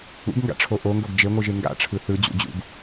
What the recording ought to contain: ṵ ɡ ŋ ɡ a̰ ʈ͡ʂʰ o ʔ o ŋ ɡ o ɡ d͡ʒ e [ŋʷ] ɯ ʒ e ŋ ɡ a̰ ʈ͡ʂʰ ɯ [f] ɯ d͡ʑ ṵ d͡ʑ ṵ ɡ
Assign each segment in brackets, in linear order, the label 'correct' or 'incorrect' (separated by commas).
correct, incorrect